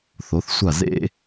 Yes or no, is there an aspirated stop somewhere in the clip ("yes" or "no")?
no